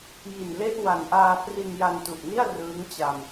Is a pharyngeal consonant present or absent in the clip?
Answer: absent